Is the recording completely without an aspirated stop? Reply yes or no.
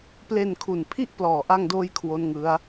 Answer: no